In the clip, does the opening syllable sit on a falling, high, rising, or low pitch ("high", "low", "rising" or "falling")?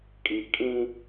low